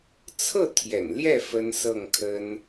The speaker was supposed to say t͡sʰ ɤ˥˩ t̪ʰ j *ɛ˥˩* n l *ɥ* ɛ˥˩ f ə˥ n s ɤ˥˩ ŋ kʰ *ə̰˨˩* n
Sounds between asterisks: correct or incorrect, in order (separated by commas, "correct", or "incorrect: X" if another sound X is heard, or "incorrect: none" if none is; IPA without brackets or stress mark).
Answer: incorrect: ɛ̰˨˩, incorrect: j, incorrect: ə˥